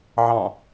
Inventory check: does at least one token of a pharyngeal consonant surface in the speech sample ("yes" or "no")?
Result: yes